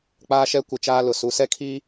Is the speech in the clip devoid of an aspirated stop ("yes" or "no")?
no